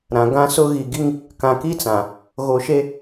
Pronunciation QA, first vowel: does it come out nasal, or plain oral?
nasal